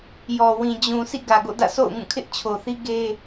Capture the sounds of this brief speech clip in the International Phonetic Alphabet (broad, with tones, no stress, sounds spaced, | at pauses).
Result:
j ɔ˨ w ĩ˨ d͡ʑ ũ˨ sʰ ḭ˦˨ ɡ ä˨ ɡ o̰˦˨ d ä̰˦˨ sʰ o̰˦˨ ʊ̯ ŋ ũ˦˨ kʰ ɪ˦ ʔ t͡ɕʰ o˨ θ i˦ ɡ e˦